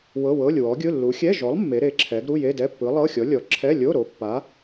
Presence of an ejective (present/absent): absent